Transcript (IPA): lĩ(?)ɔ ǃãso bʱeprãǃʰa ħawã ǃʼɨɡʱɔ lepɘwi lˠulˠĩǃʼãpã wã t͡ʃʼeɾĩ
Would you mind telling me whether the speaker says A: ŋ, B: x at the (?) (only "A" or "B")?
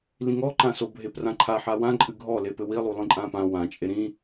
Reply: A